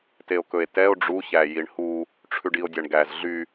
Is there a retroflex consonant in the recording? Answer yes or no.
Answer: yes